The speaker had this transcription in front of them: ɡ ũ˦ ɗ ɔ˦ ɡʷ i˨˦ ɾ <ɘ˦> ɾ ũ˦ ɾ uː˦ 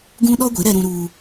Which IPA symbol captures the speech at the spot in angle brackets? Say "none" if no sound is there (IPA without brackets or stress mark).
ɛ˦